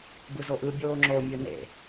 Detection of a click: present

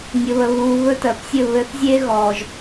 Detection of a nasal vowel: absent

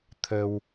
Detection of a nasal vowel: absent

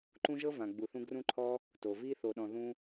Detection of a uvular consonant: absent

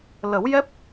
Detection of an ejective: absent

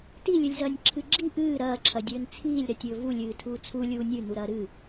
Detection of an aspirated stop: present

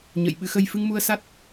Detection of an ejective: absent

